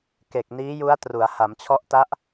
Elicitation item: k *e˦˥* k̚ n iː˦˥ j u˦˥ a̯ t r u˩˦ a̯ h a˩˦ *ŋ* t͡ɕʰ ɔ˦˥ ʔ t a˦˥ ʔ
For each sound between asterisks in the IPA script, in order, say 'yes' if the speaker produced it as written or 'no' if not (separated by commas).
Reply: no, no